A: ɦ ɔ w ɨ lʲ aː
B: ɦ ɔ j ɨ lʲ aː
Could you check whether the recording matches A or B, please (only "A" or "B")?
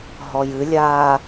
B